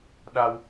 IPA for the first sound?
ɗ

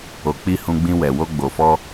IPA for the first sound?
o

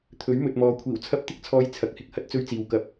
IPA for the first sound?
t̪ʰ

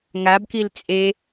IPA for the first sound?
ŋ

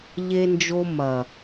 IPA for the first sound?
ʎ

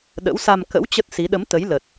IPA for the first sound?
ɗ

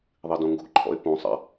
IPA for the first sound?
ðˤ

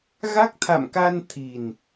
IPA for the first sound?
ɣ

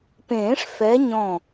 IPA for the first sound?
p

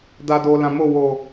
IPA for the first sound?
d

